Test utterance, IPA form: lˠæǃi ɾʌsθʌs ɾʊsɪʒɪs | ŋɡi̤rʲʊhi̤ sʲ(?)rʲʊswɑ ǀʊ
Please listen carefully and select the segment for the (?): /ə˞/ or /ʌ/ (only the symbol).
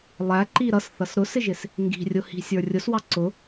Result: ə˞